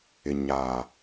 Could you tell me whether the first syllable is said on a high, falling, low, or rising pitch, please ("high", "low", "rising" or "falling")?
low